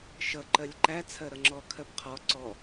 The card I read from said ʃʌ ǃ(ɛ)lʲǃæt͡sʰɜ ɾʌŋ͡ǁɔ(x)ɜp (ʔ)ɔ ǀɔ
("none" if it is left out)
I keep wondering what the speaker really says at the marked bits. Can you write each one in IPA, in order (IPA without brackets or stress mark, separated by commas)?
ɜ, kʰ, qʰ